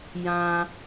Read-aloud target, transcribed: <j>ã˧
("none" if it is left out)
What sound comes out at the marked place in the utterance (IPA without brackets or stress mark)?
j